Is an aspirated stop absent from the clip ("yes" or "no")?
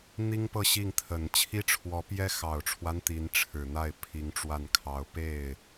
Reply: no